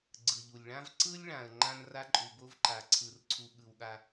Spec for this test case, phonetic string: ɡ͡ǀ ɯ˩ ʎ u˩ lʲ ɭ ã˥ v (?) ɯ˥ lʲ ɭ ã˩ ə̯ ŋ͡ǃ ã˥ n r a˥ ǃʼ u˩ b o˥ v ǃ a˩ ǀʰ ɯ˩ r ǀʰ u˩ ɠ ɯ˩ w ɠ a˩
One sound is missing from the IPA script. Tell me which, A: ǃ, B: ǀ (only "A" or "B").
B